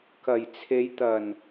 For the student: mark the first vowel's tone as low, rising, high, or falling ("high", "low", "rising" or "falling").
low